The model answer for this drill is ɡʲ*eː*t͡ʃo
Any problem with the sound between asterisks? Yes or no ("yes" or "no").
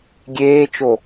no